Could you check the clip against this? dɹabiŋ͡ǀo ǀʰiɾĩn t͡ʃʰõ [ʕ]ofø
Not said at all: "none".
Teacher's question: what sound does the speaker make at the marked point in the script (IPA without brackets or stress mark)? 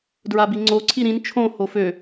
h